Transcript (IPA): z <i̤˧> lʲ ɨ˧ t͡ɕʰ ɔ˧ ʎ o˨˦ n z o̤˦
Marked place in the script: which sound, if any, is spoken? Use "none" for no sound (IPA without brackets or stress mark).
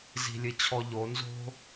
i̤˧